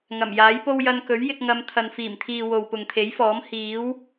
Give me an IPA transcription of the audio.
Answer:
ŋ ɐ˨˩ m j aː˨˥ j p o˥ w j ɐ˧ n k ɵ˨˥ ɥ j ɪ˧ k̚ ŋ ɐ˧ m t̪ʰ ɐ˨ n f iː˨˩ m t̪ʰ iː˨ w o˨ w p ʊ˨ ŋ t̪ʰ e˨˥ j f ɔː˨˥ m h iː˨˥ w

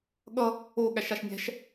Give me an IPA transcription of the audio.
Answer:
ɠ ʌ | o ɠ æ ʃ a ʃ nʲ æ̤ ʃ

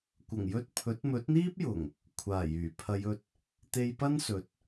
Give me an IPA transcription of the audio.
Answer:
kʷ ɐ˨˩ ŋ j ɵ˧ t̚ pʰ ɵ˨˥ t̚ m ɵ˨˥ t̚ n̪ iː˥ p̚ j ʊ˨˩ ŋ | kʷʰ aː˨˩ j yː˨˩ pʰ ɐ˨˧ j ɵ˧ t̚ | t̪ e˧ j p ɐ˥ n s ɵ˨˥ t̚

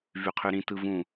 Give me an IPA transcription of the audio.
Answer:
v y qʰ y ɾ ĩ t ɯ v ũ

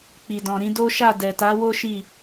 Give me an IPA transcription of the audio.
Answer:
k͡p i˨ d ɔ̃˨ ɾ ĩ˨˦ d o˦ ʃ a˦˨ d ɛ˨ t a˨˦ w o˦ ʃ i˦˨

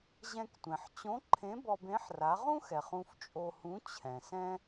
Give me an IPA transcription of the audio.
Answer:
ʑ ɛ̃˧ k tʷ ẽ˩ ħ t͡ɕ õ˧˥ ǃʰ ẽ˧˥ b ɔ˧ b ẽ˧˥ ħ r a˩˧ ʁ ũ˥ x ɛ˩ χ ũ˧ f t͡ʃʼ o˧ h ũ˧˥ t͡ɕʰ ɛ̃˩ s ɛ̃˥

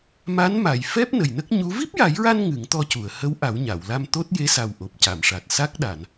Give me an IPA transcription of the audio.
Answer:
m a˧˥ n m a˨˩˨ j f ɛ˦˥ p̚ n ə˨˩ j n ə˦˥ k̚ ɲ u˧˥ v i˦˥ p̚ j a˨˩˦ j ɹ a˧ n ŋ ɨ˨˩˦ ŋ t̪ ɔ˧ c u˨˩˨ ə̯ h ə˧˥ w ʔ a˨˩˦ w ɲ a˨˩˨ w l a˧ m t̪ o˦˥ t̚ j e˧˥ s a˨˩ w ʔ o˨˩ p̚ c a˨˩˨ m ʂ a˨˩ t̚ s a˦˥ k̚ ɗ a˨˩˨ n

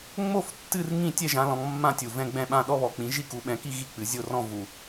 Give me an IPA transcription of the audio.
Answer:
ŋ͡m o˥˧ f tː ɨ˥˧ r ŋ ĩ˥˧ tʲ ɛ˥˧ ʒ ã˨˦ l ɔ̃˨˦ ŋ mː ã˥˧ tʲ u˨˩ v ɛ̃˥˧ ɡ͡b ɛ̃˥˧ ɓ ã˥˧ ɗ ɔ˥˧ β ɔ˨˩ k͡p ĩ˨˦ ʒ i˥˧ k u˨˦ ɓ ɛ̃˨˦ k i˥˧ ɣ i˥˧ k͡p ɨ˨˦ zʲ o˥˧ r ɔ̃˥˧ v u˨˩

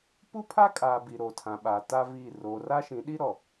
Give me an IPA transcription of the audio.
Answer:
p u˦ pʰ a˦ kʼ aː˨ b i˨ ɾ o˨ tʰ ã˨ ɓ a˨ t a˦ v i˦˨ r oː˨ r a˦ ʃ ĩ˨˦ ɗ i˦ ɾ ɔ˨

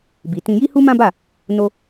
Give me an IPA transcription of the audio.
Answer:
b i˧ t ĩ˦ j i˦ h u˦ m ã˦ b a˦˨ | n o˦

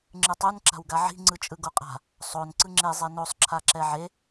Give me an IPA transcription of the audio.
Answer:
ŋ͡ǁ ɯ tˤ u n ǁ a̤ w ɡ a ʕ i̤ ŋ͡ǀ ɯ t͡ʃʼ ɯ ɡ o qʼ a̤ | sˤ o n ǀ ɯ ŋ͡ǁ e zˤ e n o sˤ ǁʰ a ǁ ɛ ʕ e

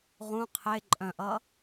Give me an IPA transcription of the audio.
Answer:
ʁ ũ qʰ e ǃʼ œ̃ ʔ ʌ

